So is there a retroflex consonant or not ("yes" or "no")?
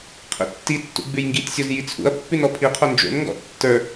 no